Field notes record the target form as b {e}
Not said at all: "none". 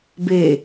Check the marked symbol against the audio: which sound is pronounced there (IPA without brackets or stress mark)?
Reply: e